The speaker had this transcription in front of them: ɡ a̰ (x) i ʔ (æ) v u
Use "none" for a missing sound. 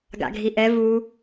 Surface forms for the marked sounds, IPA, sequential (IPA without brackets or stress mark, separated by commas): ɡʱ, ɛ